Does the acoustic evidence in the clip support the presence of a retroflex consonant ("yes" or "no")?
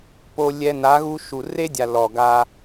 no